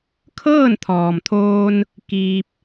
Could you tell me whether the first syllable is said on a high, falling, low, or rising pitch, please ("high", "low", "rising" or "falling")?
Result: falling